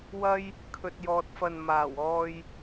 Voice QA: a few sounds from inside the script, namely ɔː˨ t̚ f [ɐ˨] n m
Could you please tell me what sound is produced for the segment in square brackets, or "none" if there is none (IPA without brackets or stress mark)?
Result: ɐ˨